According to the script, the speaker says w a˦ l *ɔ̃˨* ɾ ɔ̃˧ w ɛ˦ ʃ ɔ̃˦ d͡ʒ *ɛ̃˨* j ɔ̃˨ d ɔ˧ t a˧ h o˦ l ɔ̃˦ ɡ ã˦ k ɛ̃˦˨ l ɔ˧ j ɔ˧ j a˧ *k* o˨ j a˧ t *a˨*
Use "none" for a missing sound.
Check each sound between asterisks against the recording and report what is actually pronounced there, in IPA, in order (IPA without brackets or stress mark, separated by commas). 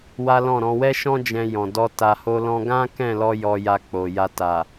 ɔ̃˦˨, ɛ̃˧, k͡p, a˨